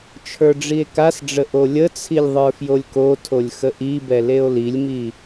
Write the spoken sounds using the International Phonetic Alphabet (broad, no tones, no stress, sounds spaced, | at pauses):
t͡ʃʰ ə˞ ɖ͡ʐ i e̯ k a s ɖ͡ʐ ə ʔ o lʲ ə t͡sʰ i lʲ ðˤ ə˞ f j o lʲ k o tʰ o lʲ x ə ʔ i b ɛ l e o̯ l i lʲ m i